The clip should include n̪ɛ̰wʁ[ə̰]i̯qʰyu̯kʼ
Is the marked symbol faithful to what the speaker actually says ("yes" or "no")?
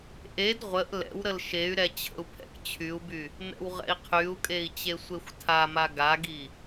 no